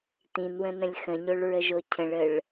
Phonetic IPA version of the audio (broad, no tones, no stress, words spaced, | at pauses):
t̪ĩnwə̃nə̃lʲ xə̃ɲoɭɹəʒo cʰə̃ɭəɭ